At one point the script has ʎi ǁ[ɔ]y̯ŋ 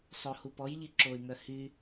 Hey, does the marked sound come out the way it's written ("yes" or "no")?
no